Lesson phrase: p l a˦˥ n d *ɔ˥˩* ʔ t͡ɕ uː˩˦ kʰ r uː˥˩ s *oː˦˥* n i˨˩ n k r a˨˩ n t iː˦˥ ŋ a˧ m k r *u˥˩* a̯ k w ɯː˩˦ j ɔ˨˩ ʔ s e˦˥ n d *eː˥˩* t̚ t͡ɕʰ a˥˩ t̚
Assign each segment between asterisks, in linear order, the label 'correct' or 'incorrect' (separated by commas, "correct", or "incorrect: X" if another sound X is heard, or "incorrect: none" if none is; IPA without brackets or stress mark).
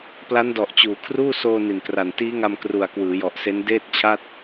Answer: incorrect: ɔ˨˩, incorrect: oː˧, incorrect: u˨˩, correct